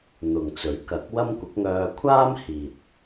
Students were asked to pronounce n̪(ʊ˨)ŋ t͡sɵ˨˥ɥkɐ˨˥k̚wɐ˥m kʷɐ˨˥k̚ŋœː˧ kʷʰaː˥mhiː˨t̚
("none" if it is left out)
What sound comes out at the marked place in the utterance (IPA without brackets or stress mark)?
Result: ʊ˨